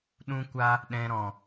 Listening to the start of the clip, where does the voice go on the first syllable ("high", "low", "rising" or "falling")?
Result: high